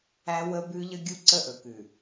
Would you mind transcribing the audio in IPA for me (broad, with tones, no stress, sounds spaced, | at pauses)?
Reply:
æ˦ w ə˦ b ʉ˦ ʎ ə˦ ɡʲ u˦ ǀ ə˦ ʔ ɵ˨ k ʉ˨